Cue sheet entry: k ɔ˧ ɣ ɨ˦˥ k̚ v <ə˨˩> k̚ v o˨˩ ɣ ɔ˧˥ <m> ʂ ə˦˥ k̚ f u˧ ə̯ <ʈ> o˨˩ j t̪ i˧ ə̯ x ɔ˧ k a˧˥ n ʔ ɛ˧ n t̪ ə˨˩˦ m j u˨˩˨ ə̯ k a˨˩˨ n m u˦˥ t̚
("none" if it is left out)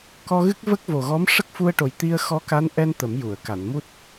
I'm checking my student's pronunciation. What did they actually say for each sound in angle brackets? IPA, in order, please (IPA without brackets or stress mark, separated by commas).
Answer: ə˦˥, m, ʈ